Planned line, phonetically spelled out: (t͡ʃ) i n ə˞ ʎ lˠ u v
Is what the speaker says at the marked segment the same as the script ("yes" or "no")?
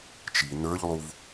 yes